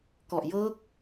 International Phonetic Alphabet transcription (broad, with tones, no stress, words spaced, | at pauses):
kɔ˨˩ʔjɤː˦˥k̚